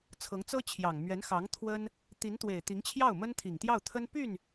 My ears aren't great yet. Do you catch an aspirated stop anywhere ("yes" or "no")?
yes